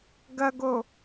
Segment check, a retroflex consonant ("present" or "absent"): absent